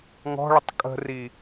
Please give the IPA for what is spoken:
ŋ ɔ̤ ɭ ə tˤ kʼ ə̤ r i

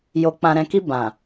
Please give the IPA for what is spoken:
j o˨ k͡p ã˨ ɾ ɛ̃˨ k i˧ b ã˨

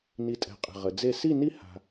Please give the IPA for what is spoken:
n i˧ tʼ ɛ̤˧˩ qʼ ə̤˧˩ ʁ ə˩˧ d͡z e˥˧ s i˥˧ n i˥˧ h a̤˧

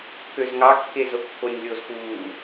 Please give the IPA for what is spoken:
k ø z ŋ ɑ kː e z o kː o nʲ lʲ o z k uː

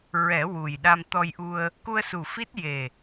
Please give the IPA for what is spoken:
ɹ ɛ˨˩˦ w u˨˩ j ɗ a˧ m t̪ ɔ˧ j ʔ u˧ ə̯ | k u˧ ə̯ s u˨˩ f i˦˥ t̚ j e˨˩

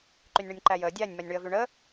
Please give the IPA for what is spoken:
ǃ y nʲ ɳ y nʲ ǃ æ j əː dʲ æ nʲ m æ nʲ ɳ y ə̯ v y ɳ əː

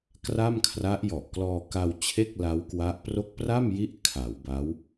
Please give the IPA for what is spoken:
k r a˥˩ m kʰ r a˦˥ ʔ j ɔ˨˩ ʔ k l ɔː˧ k a˧ w t͡ɕʰ e˥˩ k̚ l a˦˥ w k w a˦˥ ʔ p r o˦˥ k̚ p r a˥˩ m j i˥˩ ʔ kʰ a˩˦ w b a˦˥ w

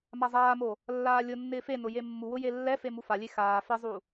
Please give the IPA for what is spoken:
m a zˤ aː m o | lː aː lʲ ʊ nː ɪː f e n ʊ j e mː u w ʊ j e lː ɛ f e m u f a lʲ e x aː f ɪ zˤ u

